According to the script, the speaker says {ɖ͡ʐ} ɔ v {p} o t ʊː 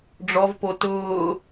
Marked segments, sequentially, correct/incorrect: correct, correct

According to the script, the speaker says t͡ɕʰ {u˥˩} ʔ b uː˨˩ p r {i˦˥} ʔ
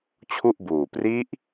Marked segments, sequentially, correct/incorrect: correct, correct

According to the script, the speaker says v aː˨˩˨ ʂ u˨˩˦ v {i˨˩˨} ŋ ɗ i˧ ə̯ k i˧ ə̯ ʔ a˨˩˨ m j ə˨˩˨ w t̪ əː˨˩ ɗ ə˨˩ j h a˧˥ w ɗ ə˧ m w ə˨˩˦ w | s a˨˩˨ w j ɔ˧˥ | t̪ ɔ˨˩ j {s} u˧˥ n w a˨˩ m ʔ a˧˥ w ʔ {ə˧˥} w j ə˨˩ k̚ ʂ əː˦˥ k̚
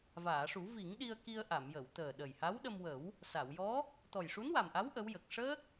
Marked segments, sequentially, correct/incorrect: incorrect, incorrect, correct

